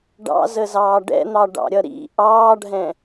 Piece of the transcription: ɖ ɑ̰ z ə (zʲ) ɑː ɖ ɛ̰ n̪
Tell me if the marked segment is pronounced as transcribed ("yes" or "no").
no